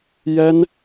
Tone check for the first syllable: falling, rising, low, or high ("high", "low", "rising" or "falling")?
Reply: high